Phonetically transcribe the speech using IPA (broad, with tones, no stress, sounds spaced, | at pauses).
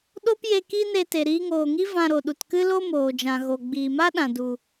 ɗ o˦ p j e˧ k i˦ n e˧ t e˨ ɾ iː˧ ŋ oː˨ ŋ i˦ v ã˧ ɾ o˨ ɗ u˨ t k ɨ˦ l o˦ m oː˨ d͡ʒ ã˨ ɣ o˨ ɡ͡b iː˨ m a˦ ɗ ã˨ d u˨